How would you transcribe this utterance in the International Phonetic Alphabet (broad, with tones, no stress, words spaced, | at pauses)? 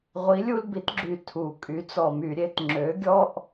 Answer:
ʁʷi˨˦lʲu˦lbi˨˦tɡ͡ǁy˨˩ tʰu˨˩ kʼy˨˦t͡sɔ˧˩˧my˧˩˧ ɾʲe˨˦t ŋ͡ǁø˨˦ɡʲɔ˦ʔ